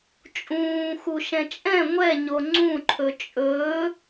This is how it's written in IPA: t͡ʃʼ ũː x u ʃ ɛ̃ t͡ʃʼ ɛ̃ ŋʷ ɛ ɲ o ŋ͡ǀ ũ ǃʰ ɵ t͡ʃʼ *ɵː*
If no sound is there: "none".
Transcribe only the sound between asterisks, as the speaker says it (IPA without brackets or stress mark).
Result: ɵː